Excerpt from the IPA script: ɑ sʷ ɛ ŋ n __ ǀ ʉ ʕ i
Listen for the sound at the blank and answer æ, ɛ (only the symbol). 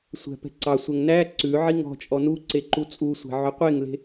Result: æ